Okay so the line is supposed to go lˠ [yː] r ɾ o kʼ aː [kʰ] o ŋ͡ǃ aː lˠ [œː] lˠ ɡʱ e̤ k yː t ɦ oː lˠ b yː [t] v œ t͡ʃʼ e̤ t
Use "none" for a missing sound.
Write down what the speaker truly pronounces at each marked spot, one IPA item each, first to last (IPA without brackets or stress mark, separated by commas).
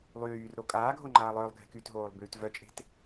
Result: yː, ɡʱ, œː, t